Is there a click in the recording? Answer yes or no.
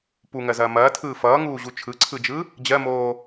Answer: yes